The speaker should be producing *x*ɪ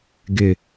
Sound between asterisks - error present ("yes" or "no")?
yes